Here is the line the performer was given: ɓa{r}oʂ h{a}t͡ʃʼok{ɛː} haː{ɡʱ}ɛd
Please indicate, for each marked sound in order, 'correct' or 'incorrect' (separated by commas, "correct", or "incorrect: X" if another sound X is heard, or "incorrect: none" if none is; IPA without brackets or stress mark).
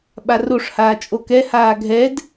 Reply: correct, incorrect: aː, incorrect: ɛ, correct